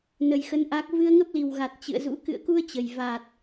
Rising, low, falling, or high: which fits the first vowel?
low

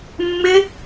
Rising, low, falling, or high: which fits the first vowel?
high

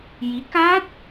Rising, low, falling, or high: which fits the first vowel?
rising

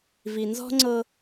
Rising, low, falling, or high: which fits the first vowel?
low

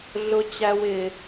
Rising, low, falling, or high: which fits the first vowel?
high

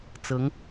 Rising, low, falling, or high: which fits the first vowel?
rising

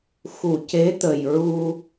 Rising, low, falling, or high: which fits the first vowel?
low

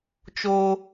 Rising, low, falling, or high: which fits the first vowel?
high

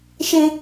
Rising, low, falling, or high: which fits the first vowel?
high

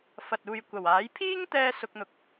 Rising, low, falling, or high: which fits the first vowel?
low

